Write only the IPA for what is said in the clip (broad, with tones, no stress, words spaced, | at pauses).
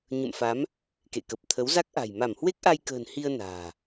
ɲə̰˧˨mfa˨˦m | kḛ˧˨kə˨˩p̚ t̪ʰə˨˦w za˦˥k̚ʔa̤˨˩j ma˧˩mhwe˦˥k̚ʔa˧jkə̤ː˨˩n hi˧ə̯ na̤ː˨˩